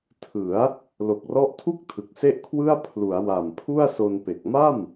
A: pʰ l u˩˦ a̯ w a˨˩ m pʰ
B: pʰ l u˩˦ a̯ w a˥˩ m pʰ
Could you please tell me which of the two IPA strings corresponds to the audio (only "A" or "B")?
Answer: A